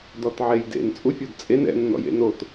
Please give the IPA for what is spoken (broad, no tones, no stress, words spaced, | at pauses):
dɔtʕejdḛn t͡sʼufʲɔdt͡sʼen ɛ̰ nːɔ̰jḛnot